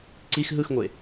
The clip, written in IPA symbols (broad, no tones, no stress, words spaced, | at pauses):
ǀix ɦɯxŋʷe